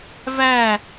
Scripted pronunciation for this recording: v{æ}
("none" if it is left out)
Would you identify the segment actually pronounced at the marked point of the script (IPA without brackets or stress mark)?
æ